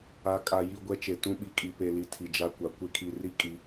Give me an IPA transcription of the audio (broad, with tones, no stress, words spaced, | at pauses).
a˨˦kʼa˨ji˦˨ ɡʷɛ˦t͡ʃe˨ tũ˦ɓi˨kʼi˨pe˨ li˨ tʰi˨d͡ʒa˦kʷa˨ kʷe˦kʰi˨ri˦ kʼi˨˦